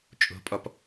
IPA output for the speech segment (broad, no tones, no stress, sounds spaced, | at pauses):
t͡ʃʼ o̤ pʼ ɔ p